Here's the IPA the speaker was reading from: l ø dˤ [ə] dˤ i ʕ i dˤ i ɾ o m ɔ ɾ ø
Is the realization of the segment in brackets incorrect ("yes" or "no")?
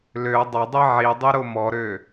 no